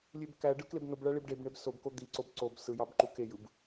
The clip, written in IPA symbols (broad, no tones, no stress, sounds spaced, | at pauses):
lʲ e b k æ ɖ ɯ k l e b n o b ɭ æ ɭ i b ɖ e b ɳ e b s o b k o d̪ i ǀ o b ǀ o b s ɯ j ɑ b ǃ u k e j ɯ b